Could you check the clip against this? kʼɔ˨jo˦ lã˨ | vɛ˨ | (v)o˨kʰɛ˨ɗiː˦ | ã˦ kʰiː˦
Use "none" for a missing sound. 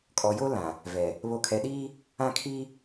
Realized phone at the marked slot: β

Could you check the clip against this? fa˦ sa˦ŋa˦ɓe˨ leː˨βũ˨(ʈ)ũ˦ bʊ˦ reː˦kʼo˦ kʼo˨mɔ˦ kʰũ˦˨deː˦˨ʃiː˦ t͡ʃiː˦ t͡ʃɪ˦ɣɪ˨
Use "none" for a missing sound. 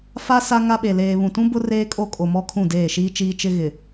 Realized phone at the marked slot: t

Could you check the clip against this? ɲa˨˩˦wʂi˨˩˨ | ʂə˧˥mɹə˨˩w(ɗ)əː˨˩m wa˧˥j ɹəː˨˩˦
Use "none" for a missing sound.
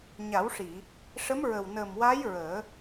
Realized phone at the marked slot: n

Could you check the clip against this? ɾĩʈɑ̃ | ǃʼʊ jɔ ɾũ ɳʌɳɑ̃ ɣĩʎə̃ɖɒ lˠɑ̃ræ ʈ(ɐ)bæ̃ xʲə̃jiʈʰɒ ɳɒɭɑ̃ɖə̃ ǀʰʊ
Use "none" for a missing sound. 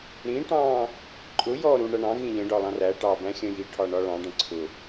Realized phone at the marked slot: ɑ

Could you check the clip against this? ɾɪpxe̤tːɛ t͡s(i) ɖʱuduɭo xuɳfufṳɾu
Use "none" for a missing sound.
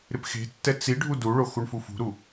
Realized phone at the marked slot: i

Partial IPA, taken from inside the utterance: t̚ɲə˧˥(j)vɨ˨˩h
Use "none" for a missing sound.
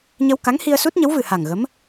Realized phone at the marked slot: w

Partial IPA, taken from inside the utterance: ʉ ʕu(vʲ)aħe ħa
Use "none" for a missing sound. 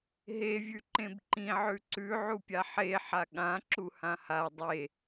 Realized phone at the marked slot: pʲ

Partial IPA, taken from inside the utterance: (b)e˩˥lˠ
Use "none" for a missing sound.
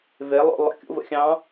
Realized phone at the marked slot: v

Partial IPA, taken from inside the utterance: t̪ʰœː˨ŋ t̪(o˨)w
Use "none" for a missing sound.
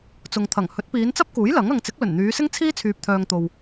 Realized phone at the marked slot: o˨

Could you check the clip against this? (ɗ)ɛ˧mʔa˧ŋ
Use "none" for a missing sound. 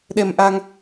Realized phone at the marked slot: ɗ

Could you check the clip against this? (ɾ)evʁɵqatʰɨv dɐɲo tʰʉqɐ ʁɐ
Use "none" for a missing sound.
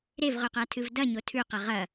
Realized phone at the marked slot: ɾ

